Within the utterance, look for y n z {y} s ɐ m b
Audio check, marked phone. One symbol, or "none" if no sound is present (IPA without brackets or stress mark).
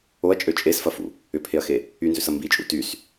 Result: ø